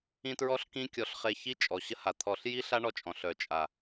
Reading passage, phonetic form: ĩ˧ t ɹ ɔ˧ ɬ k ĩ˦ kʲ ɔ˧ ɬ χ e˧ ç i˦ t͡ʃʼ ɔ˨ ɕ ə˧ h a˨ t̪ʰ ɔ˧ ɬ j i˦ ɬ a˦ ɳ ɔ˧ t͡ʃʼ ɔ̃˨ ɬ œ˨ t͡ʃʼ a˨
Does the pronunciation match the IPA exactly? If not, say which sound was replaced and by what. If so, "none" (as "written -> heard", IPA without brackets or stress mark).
none